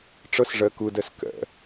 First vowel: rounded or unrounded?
unrounded